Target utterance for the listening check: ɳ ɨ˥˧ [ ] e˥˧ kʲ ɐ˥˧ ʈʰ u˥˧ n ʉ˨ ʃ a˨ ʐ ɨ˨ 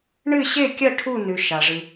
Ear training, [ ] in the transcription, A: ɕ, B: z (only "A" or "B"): A